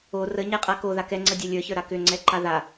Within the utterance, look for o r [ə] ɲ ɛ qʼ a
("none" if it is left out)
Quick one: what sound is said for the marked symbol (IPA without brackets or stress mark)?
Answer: ə